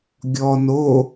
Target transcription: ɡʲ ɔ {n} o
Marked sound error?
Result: no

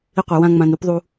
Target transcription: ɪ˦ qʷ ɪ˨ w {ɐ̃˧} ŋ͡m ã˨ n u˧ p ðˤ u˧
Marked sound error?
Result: yes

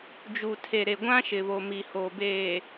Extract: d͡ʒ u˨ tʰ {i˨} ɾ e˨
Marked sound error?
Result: yes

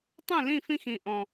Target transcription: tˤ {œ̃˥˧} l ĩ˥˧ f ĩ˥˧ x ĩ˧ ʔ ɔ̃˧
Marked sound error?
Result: yes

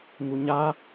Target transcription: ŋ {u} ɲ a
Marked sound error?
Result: no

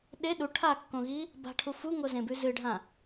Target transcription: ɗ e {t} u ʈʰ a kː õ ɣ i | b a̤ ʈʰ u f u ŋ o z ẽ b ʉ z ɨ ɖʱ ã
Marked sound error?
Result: yes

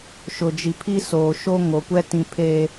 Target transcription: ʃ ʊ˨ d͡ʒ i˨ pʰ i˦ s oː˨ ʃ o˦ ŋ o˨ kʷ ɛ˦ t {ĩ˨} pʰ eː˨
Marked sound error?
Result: no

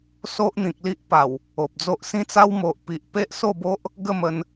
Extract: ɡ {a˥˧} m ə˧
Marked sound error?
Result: yes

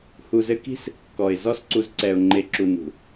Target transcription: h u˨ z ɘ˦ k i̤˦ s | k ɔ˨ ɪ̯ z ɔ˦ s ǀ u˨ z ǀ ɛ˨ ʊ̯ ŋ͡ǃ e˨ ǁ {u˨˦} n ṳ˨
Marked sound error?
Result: yes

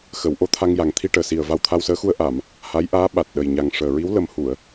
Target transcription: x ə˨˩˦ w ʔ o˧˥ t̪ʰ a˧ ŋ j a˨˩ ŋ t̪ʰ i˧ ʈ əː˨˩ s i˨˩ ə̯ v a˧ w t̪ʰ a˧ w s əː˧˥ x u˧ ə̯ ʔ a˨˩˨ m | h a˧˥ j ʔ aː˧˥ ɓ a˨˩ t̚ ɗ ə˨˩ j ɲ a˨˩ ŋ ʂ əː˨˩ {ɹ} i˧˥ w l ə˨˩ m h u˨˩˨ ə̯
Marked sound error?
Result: no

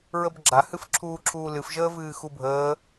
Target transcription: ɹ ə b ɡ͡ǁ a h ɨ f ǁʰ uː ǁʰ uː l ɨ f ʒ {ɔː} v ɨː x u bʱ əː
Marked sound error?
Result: yes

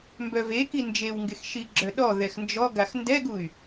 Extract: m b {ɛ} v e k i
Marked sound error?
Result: yes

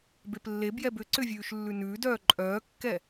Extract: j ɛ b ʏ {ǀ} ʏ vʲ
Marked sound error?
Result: no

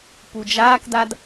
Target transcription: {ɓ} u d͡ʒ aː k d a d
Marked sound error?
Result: yes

